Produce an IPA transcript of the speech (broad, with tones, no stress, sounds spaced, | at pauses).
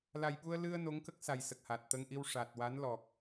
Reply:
l a˨˩ j ɓ u˧ ə̯ l ɨ˧ ə̯ n o˧˥ ŋ k ə˦˥ k̚ s a˨˩ j s ə˨˩ k̚ h a˨˩ t̚ t̪ ə˧ ŋ ʔ i˧ w ʂ a˨˩ t̚ w a˧˥ n l ɔ˨˩ k̚